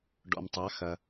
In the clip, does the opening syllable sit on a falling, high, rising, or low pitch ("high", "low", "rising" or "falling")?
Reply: low